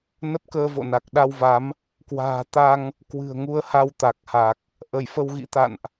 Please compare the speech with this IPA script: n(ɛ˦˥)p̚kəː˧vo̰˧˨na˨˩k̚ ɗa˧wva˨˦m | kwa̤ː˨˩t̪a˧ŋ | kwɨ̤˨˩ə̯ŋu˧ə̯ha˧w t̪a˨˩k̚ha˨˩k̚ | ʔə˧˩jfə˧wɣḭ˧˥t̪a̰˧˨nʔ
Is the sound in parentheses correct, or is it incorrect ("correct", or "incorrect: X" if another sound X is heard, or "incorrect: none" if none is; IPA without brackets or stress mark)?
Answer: incorrect: ə˦˥